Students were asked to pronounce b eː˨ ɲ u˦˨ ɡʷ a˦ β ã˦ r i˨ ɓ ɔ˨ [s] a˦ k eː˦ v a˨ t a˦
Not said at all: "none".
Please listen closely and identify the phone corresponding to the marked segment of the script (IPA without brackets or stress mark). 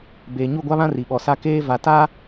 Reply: s